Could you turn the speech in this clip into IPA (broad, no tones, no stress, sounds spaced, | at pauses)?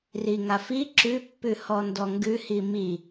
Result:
r i ŋ a f i ǁ ʉ pː ʉ h ɔ n d ɔ ŋ ɡ ʉ h i m i